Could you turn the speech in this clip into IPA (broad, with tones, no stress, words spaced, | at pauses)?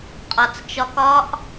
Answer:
qʼɒ˩t͡st͡ʃɒ˧k ɒ˥ʔ